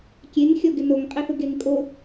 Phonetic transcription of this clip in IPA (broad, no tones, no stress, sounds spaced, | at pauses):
kʲ e ŋ xʲ ɔ ɡ ɪ n o ŋ qʼ ɪ θ ʊ ɡ e ŋ kʼ o